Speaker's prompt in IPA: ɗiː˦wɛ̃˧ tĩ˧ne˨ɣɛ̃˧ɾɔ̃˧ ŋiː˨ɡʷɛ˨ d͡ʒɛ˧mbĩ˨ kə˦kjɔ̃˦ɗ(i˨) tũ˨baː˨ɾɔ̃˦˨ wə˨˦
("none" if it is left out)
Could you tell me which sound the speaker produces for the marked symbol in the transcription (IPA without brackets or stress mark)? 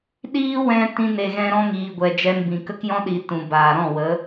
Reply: i˨